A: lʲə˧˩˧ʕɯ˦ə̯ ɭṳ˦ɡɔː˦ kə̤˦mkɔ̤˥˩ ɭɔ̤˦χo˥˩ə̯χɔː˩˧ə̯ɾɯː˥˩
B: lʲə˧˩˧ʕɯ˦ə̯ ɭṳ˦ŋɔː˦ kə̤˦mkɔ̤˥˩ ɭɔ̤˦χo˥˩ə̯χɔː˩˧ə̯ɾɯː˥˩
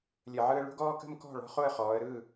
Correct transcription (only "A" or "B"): A